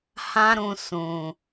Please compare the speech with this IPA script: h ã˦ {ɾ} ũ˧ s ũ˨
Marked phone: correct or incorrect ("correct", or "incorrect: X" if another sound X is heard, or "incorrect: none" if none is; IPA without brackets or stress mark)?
correct